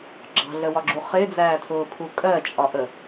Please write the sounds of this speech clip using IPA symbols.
ɡ͡ǁ ɑ̤ ɮ ə w ɒ ɡ͡ǁ u χ ɪ d͡z æː tʰ ʊː pʰ u kʼ ɜ t͡ʃʼ ɒ ʔ ə

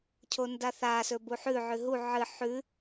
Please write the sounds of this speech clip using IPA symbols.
cʰ o n d a θ a s ɵ b u ħ ʉ ʕ ʉ ɦ u ʕ ɨ ħ ʉ

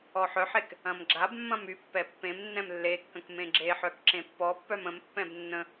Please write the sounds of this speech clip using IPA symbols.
ɔ ħ œ ħ e k | ɐ̃ m ɡ͡ǁ a b mː ɐ̃ m y pː ɛ pː ẽ m nː ɛ̃ m lː e kː ə̃ k m ẽ ɡ͡ǁ e ħ œ k ǁ ẽ pː ɔ pː œ m ə̃ m pː ɛ̃ b nː ə̃

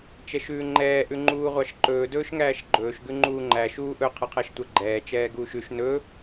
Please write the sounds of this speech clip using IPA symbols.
t͡ʃ ɛ ʃ ʉː ŋ͡ǃ ɛː ʔ ʉ ŋ͡ǃ uː ʁʷ ɑ ʃ ǃ ɵː d ɵː ʃ ŋ æː ʃ ɡ͡ǃ ɵː ʃ ɡ ʉ ŋ͡ǃ uː ŋ͡ǃ æ ʃ uː ʔ ɵ qʰ ɛ qʰ æ ʃ tʷ æ ɡ͡ǃ ɛː t͡ʃ ɛː ɡ uː ʃ ʉ ʃ n ɵ

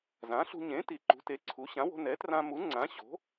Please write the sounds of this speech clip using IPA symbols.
z ã˩˥ ɬ ṳ˧ ɲ ẽ˩˥ t i˩˥ ǃ ṳ˩˥ t e˩˥ ǀʰ u˩˥ ɕ ã˩˥ w o̤˧ n ɛ˩˥ t r ã˧ m u˩˥ ŋ͡ǀ ã˩˥ ɕ o̤˩˥

